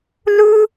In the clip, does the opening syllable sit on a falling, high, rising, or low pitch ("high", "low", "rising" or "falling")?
high